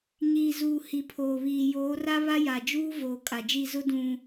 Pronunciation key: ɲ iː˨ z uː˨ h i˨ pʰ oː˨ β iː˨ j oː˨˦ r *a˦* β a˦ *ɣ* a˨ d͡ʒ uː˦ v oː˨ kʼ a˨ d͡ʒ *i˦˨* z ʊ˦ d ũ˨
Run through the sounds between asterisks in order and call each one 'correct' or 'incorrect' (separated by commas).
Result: correct, incorrect, correct